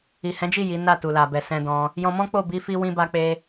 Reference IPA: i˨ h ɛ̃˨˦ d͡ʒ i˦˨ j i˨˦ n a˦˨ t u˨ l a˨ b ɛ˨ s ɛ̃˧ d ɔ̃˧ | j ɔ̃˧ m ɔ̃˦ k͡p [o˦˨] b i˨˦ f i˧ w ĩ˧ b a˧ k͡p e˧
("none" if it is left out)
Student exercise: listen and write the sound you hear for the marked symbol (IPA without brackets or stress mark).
o˦˨